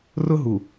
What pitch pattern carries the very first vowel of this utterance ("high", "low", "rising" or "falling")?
high